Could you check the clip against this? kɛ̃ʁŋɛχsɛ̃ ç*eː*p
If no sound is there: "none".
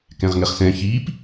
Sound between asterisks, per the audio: iː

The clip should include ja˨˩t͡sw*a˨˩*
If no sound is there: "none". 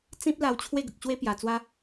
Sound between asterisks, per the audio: a˦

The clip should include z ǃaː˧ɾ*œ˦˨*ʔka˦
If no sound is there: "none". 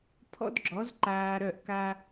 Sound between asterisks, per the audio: œ˦˨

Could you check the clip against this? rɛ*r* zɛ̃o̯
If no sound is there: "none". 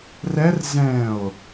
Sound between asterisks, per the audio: r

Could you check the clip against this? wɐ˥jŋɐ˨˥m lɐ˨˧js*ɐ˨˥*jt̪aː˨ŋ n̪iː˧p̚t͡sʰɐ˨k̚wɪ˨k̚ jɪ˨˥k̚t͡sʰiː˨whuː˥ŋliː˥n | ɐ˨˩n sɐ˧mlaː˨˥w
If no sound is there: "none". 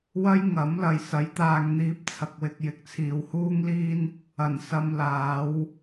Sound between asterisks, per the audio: ɐ˨˥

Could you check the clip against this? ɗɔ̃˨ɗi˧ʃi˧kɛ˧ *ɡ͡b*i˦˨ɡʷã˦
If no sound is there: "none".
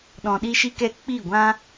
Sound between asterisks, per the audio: k͡p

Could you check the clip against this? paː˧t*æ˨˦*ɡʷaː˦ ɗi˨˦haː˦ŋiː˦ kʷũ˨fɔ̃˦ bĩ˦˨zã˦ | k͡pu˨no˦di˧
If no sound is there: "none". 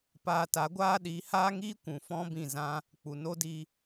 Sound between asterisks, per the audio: a˨˦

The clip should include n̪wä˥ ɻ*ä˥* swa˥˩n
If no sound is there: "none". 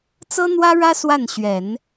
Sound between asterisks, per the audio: ä˥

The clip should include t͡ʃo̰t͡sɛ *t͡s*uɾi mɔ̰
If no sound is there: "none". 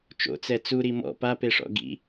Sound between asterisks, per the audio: t͡s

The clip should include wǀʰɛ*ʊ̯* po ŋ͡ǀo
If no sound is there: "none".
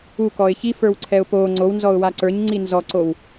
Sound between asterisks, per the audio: ʊ̯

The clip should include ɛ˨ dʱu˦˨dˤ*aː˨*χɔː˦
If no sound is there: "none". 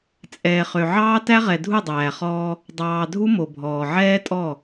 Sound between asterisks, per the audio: æː˨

